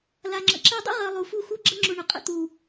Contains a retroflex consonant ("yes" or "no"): yes